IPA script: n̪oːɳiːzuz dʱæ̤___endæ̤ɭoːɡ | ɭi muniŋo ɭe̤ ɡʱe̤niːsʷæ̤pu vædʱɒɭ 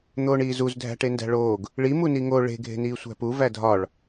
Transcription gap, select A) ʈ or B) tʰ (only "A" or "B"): A